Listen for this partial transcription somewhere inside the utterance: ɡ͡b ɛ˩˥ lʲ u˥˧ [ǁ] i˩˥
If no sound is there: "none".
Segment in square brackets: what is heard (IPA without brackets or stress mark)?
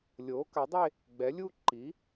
ǃ